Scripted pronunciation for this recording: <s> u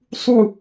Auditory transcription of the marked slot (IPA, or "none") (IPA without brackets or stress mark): sˤ